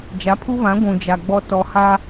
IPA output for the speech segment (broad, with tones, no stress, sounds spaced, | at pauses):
d͡ʒ a˨˦ pʰ u˦ β ã˨˦ ɡʷ ũ˨ d͡ʒ a˨ ɡ͡b ɔ˦ t ɔ˨ h a˦